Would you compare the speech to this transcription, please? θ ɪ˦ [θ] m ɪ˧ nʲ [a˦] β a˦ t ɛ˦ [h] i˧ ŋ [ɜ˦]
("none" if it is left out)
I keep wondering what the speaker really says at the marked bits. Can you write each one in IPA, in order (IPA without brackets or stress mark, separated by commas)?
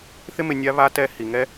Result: none, a˦, h, ɛ˦